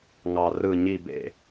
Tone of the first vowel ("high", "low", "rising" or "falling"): low